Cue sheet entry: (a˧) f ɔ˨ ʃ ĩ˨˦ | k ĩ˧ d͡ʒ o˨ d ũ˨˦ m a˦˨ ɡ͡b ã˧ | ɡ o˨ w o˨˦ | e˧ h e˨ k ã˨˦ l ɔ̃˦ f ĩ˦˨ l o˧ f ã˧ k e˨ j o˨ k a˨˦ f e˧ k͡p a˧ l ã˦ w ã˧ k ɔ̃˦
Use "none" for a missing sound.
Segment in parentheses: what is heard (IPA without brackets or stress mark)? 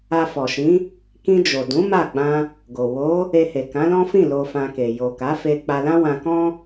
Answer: a˧